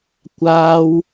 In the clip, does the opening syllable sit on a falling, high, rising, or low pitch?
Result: high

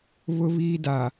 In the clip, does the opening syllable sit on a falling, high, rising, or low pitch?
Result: high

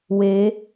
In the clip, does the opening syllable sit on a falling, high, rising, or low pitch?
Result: rising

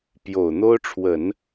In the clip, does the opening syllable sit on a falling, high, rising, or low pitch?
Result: low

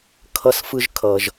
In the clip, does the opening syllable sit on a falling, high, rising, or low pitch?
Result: high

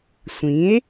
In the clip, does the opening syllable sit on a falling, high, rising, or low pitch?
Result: rising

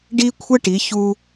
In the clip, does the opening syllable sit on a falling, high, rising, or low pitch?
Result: high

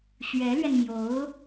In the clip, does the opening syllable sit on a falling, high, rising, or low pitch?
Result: rising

